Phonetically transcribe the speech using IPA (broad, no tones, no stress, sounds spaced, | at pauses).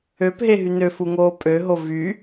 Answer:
ø p ɦ e ɦ y n ø f u ŋ oː pʼ ø ɦ o v y